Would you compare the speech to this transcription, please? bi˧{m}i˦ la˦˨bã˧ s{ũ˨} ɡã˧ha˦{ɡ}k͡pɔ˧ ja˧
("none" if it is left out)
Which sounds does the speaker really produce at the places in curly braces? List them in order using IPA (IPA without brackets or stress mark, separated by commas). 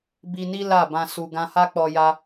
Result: n, u˨, none